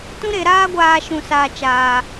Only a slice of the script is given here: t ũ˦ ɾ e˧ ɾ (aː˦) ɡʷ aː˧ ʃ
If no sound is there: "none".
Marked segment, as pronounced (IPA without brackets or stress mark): aː˦